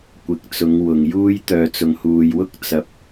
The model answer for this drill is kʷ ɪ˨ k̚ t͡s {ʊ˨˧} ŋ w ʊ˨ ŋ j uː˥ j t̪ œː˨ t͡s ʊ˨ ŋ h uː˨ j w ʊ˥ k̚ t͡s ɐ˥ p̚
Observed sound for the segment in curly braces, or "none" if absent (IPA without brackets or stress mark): ʊ˨˧